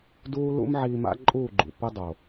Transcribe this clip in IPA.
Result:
duː˦ lṵ˦m ʕiː˧ma̰˦ǃʼuː˦˨ɡ͡ǃṵ˨ pɯ˦dˤo˨

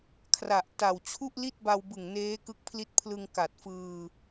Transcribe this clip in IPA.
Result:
kʰra˨˩ʔta˨˩w t͡ɕʰu˥˩ʔli˥˩t̚ba˧wbɯ˨˩ŋ neː˦˥kɯ˦˥k̚pʰli˦˥t̚pʰlɯ˧ŋ ka˨˩t̚fɯː˧

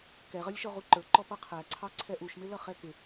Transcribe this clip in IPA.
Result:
kɛʁʌlʲʃɔ ʁuǃə˞ǃɔ pʌqʰæǀʰɑ ǀʰɛʔuʃmɪlʌ χɛkɪ

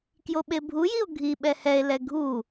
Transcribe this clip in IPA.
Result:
kjoɓebʱujio̯ ɡʱi ɓɛhɛe̯lɛ ɡʱu

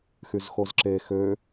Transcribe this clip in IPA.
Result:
xyzxozǁe xø

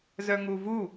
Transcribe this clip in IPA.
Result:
zœŋuvu

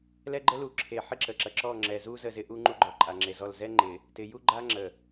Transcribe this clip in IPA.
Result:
lɛ˦ɡ͡ǃə˦lu˨˦ ǁʰe˨ ħɪ˦ǁə˨ǁɐ˨ ǁɔ˦˨ŋ͡ǁɛ˨zu˦ zə˦˨zɪ˦ʔu˦ ŋ͡ǃu˦ɡ͡ǃɔ˨ ǃʼa˨ŋ͡ǁe˨zɔ˦˨l zɛ˦ŋ͡ǃɪ˨ | tɪ˨ju˦ ɡ͡ǃa˦ŋ͡ǁə˨

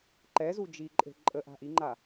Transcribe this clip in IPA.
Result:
ǃɛzu d͡ʒiǃʼe̤ ǃʼə ʔa̤ʔiŋ͡ǃa

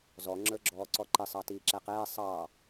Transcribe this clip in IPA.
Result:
zɔ ŋ͡ǁə˞ɡ͡ǁɔːǀɔǃɪ sˤɑtiːǁæqɛː sˤɑ

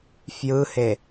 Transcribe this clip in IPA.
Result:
fjɯhe

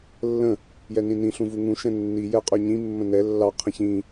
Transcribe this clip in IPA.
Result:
lːə̃ | jɛnĩnĩ ɬũvuŋũ ʃɛ̃nːi jɛqʼœɲĩ mːə̃nɛ lːɑ qʰə̃çĩ

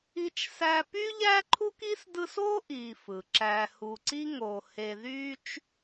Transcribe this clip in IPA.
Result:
i˦t͡ʃsæ˦ py˥ʎæ˥ǃʰu˥k i˥sdɯ˦so˥ ʔi˨fɯ˩ǁæ˨hu˨ ǀi˥ŋo˨ he˨ðy˦t͡ʃ

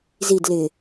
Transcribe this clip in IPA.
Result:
zid lɪ

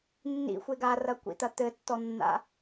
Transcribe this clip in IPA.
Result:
nːḭxʷe ɡarɐkʷḭt̪ɐ t̪ɘtːɔnːa̰

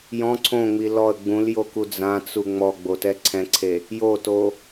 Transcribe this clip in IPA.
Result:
jɔ̃ ǀʰõŋ͡mi lɔə̯ ɡ͡bũljoku d͡zãt͡su ŋ͡mɔɡ͡botɛ ǀʰɛ̃ǀʰe | joto

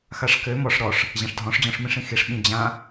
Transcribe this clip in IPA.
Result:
xaʂkø mɔʂ ɾɔʂ | ʑãʂdʱɔ̃ʂd͡ʑɔ̃ʂ mĩʂĩxiʂ ɓĩd͡ʑã

